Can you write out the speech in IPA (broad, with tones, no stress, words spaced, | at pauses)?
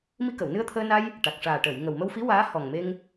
mi˧kə˨˩˨wnɨ˧ə̯t̪ʰəː˧ na˧j | ʈa˨˩k̚ʂaː˨˩ʈəː˨˩˨jŋə˨˩w mə˧wfi˧˥ waː˧˥ hɔ˨˩ŋme˧ŋ